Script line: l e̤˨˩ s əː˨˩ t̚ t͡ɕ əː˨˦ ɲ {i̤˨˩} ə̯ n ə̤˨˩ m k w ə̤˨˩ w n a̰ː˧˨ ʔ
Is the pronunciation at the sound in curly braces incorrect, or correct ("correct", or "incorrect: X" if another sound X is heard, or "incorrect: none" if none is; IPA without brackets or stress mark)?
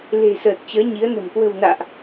incorrect: i˨˦